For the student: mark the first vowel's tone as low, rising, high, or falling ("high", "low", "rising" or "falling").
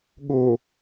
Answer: low